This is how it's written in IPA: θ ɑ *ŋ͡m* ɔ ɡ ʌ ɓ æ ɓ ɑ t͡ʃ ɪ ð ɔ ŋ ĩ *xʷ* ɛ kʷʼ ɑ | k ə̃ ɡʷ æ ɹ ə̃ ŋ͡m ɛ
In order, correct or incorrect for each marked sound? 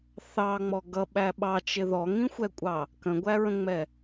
correct, correct

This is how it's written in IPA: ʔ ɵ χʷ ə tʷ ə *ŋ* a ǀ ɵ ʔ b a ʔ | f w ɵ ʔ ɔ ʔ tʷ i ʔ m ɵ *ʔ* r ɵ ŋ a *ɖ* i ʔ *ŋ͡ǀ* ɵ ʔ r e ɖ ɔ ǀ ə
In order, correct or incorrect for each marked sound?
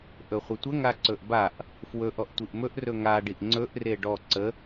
correct, correct, correct, correct

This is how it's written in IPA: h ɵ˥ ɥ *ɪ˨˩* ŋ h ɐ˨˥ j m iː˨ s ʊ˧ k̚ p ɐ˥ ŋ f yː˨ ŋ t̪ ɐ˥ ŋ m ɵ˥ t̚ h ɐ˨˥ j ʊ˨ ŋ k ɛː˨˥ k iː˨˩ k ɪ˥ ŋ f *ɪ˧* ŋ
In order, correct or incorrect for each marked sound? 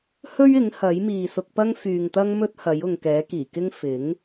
incorrect, incorrect

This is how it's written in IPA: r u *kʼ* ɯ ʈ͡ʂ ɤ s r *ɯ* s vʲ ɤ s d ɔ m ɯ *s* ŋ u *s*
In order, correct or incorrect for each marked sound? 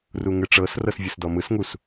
incorrect, incorrect, correct, correct

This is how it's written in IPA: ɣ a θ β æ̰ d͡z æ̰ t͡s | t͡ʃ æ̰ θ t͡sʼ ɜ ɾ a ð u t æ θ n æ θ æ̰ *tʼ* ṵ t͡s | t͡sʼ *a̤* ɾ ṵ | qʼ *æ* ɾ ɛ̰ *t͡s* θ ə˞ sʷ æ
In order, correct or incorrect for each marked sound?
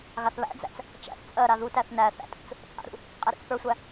correct, incorrect, correct, correct

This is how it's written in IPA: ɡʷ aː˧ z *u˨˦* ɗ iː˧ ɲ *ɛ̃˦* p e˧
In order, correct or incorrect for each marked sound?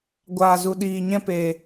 incorrect, correct

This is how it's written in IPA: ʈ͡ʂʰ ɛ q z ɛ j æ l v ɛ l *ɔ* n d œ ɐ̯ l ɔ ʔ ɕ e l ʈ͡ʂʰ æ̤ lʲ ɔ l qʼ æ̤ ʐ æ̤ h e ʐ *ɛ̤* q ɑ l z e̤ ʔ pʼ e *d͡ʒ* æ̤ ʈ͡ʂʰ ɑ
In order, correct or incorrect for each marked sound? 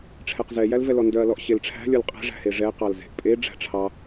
correct, incorrect, incorrect

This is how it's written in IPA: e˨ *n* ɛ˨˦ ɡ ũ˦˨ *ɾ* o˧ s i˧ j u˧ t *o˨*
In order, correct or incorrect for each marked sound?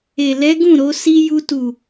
incorrect, correct, incorrect

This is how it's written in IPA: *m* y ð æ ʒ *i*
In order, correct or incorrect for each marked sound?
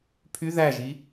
incorrect, correct

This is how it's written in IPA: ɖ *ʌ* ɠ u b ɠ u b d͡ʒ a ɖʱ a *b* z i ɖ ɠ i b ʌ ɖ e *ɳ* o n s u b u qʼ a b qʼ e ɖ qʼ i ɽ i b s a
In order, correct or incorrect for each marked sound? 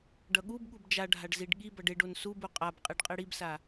correct, incorrect, incorrect

